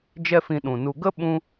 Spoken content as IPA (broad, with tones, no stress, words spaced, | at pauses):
d͡ʒɛ˦fĩ˧ɗũ˨nu˧ ɡə˦ ɓũ˦